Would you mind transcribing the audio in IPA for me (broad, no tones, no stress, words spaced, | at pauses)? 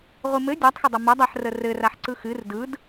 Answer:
ʁʷɨmɘ dʲatˤxədˤɐ mɐdˤaħrə rɘraħ ǀɯxɨr dɯd